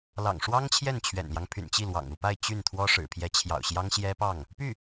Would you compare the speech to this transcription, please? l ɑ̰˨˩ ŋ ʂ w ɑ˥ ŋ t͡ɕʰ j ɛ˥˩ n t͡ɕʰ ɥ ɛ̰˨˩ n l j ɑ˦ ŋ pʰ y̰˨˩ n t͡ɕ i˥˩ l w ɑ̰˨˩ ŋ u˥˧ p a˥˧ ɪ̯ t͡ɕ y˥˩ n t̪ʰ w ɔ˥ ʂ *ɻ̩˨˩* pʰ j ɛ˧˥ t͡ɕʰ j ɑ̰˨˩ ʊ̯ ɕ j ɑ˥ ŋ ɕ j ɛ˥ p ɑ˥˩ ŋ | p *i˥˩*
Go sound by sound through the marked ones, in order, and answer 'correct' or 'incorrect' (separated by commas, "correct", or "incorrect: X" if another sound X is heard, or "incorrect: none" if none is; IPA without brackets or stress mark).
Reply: correct, incorrect: y˥˩